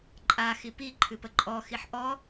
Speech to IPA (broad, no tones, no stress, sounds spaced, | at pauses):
ǃʼ a x i p i ǃʰ ɨ p ə ǃʼ ɔ x i ħ ʔ ɔ